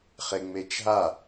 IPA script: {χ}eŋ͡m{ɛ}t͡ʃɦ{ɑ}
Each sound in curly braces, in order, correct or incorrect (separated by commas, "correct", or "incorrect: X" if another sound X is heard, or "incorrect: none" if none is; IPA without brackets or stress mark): correct, incorrect: e, incorrect: a